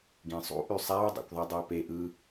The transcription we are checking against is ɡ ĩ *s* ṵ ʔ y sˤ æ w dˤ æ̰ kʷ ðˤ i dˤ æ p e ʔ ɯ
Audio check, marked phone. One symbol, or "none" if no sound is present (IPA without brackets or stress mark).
sˤ